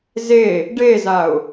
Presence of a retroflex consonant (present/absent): present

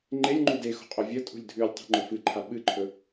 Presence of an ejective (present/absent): present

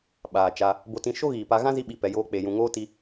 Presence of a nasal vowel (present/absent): present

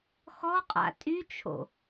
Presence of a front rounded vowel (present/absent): present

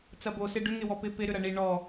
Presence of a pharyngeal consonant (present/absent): absent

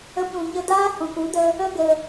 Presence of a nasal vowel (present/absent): present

